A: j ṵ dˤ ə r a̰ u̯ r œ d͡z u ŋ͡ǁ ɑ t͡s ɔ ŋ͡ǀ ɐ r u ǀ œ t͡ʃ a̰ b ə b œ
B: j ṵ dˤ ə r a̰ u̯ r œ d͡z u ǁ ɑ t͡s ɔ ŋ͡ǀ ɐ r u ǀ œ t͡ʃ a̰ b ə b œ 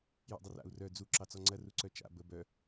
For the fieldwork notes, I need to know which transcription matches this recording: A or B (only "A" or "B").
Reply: B